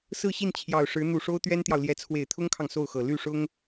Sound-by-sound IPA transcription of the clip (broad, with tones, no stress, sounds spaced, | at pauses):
s ɹ̩˥˧ ɕ i˥˩ n t͡ɕʰ j ɑ˨˩ ʊ̯ ʂ ɻ̩˧˥ n̪ u˨˩ ʂ o˥ ʊ̯ t̪ ɥ ɛ˥ n t̪ j ɑ˨ ʊ̯ l j ɛ˧˥ t͡sʰ w e˨˩ ɪ̯ t̪ʰ ʊ˥ ŋ kʰ ɑ˨ ŋ s o˥˩ ʊ̯ x ɤ˨˩ l y˥˩ ʂ ʊ˥ ŋ